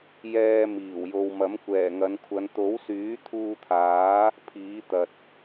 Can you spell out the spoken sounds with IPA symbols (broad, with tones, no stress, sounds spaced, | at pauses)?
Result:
j ɛː˧ m iː˨˩ w j o˨ w m ɐ˨˥ m kʷ ɛː˨˩ ŋ ɐ˨˧ n kʷʰ ɐ˨˧ n t̪ o˨˥ w s yː˨˥ t̪ʰ uː˧ t̪ʰ aː˨˥ | pʰ iː˨˥ t̪ ɐ˨ t̚